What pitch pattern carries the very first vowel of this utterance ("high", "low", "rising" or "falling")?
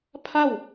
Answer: falling